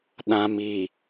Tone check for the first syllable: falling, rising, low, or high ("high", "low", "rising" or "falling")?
low